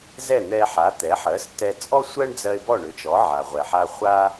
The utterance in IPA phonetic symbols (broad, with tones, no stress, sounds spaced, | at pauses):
z ɛ˥˩ n̪ ɛ˧ ħ a˩˥ t̪ ɛ˩˥ ħ ɜ˩˥ s t ɛ˧ t͡sʼ ɔ˥ sʷ ɜ˥ ɳ d͡z ɜ˧ ɪ̯ b ɔ˥˩ ɳ ʏ˩˥ t͡ʃ ɔ˩˥ ʕ a˩ ʁʷ ɛ˩ ħ a˧ χʷ a˥